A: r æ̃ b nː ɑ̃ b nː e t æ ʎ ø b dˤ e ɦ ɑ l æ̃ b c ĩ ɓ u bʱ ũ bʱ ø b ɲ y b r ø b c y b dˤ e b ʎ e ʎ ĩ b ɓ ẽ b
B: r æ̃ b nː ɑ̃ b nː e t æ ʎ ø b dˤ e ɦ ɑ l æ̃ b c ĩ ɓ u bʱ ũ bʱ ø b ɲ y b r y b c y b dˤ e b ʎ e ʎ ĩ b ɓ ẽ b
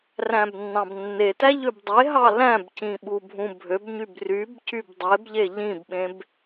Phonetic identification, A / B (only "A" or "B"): B